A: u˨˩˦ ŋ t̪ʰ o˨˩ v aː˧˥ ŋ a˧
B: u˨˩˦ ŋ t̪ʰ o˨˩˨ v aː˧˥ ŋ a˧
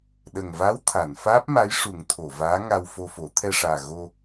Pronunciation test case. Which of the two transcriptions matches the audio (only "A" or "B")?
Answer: B